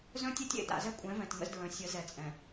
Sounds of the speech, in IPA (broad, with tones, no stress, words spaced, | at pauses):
zœ̃˦tʲɛ˦tʲ ḛ˨da̰˨zɛ˦kʷʼɛ̃˨˦ vɛ̃˨tŋə̰˦zdɹœ̃˨ sʲə˨˦ zɛ˨t͡sʼɛ̃˨